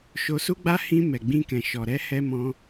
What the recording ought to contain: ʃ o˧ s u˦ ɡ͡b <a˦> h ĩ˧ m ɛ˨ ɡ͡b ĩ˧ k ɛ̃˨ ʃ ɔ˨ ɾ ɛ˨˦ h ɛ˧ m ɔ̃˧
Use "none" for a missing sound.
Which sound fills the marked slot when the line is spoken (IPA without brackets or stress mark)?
a˦